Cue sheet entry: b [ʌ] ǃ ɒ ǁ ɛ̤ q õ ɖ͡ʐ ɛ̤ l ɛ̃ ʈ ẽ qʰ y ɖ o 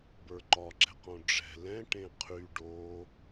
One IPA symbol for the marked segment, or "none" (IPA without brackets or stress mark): ə˞